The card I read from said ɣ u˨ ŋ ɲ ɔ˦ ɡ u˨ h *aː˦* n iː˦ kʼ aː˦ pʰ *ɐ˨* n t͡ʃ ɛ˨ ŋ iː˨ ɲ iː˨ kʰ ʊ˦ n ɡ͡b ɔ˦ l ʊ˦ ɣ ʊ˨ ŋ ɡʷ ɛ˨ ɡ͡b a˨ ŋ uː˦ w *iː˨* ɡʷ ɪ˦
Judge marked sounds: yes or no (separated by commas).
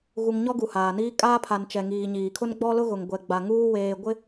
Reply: no, no, no